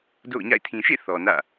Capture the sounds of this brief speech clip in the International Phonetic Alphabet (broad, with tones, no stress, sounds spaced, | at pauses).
d o̰˦˨ ʊ̯ ɲ a̰˦˨ ɪ̯ tʰ ĩ˨ ʃ ḛ˦˨ θ ɔ˨ n ä̰˦˨